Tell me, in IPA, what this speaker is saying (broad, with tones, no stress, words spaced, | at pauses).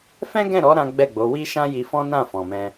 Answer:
fɛ̃˦ɡɛ̃˦˨ɾɔ˨˦ ɾã˦ɡ͡bɛ˦˨ɡ͡bo˨˦ wi˦ʃã˦ji˧fɔ̃˦ nã˦˨fɔ̃˨mɛ̃˧